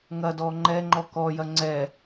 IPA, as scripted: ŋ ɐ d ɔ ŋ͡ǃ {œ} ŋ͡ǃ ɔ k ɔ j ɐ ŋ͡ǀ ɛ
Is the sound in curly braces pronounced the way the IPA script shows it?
no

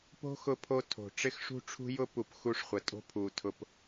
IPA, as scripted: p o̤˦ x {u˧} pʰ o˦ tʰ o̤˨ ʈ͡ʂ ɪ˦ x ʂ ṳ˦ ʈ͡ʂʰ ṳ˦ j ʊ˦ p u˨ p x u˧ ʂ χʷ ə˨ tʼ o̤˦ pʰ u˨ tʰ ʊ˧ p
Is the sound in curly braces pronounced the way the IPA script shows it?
no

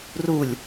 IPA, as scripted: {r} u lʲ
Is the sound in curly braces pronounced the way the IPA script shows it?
yes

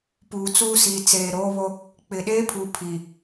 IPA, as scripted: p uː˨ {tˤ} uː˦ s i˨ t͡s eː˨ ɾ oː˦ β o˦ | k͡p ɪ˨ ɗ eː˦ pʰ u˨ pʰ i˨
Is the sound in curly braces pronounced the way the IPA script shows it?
no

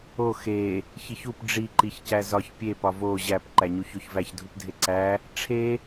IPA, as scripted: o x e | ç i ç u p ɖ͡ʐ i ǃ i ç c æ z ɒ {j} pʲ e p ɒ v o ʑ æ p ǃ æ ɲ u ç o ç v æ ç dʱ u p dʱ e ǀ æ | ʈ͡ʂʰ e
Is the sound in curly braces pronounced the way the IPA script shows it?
no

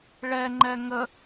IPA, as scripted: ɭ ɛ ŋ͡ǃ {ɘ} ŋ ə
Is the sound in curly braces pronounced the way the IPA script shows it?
no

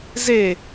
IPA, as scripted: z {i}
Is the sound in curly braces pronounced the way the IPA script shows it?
no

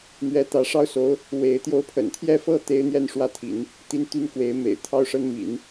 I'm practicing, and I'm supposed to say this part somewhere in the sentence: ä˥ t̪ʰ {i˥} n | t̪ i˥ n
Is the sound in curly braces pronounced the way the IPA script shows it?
no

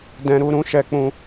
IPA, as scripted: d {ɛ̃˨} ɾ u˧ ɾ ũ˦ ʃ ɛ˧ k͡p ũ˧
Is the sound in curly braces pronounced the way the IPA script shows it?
no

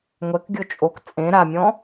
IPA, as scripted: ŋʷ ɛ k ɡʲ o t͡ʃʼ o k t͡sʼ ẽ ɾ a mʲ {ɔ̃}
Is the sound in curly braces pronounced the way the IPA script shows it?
yes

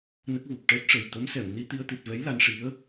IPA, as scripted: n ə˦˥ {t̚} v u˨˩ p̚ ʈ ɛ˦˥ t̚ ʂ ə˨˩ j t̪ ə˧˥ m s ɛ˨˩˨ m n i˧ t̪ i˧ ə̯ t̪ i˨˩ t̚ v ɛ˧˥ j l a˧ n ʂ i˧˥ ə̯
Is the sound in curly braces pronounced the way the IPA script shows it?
no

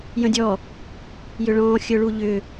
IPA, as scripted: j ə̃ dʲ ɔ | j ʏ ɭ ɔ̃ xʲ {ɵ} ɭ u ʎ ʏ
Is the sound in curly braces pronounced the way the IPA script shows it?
yes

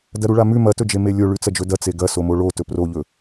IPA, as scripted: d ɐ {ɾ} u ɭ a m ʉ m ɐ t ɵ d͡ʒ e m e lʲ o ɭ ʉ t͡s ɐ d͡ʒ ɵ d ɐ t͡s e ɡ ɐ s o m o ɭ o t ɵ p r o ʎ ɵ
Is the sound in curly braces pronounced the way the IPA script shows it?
yes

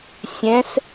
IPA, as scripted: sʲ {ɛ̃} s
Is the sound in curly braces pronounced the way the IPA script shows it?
yes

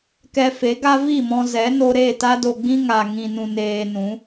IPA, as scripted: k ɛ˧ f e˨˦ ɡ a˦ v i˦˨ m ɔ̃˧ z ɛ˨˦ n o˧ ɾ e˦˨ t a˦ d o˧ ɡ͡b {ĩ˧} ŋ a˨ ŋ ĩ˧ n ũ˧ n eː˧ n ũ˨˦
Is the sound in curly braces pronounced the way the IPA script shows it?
no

